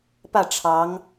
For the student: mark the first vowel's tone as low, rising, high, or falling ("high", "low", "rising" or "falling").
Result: falling